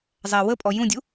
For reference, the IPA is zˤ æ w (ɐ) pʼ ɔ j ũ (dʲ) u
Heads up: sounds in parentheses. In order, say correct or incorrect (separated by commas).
incorrect, correct